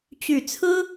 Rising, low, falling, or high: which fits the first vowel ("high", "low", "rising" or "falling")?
low